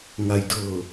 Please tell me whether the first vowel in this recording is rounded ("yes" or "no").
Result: no